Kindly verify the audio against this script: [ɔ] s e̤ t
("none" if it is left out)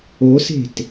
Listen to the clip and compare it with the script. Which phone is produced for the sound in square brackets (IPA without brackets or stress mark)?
o